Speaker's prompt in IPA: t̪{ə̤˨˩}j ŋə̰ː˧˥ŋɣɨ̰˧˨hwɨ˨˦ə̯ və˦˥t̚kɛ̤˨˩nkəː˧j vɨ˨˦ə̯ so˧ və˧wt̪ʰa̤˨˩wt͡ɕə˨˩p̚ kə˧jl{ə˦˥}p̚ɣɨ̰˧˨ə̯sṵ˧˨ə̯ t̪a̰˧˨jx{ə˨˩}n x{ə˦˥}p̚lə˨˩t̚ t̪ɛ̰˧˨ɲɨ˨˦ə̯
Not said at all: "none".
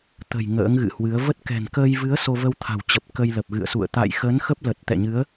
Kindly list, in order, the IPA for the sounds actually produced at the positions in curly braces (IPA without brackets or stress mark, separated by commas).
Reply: ə̤˨˩, ə˨˩, ə˨˦, ə˦˥